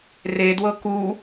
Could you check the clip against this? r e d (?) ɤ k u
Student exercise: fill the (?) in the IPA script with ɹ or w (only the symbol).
w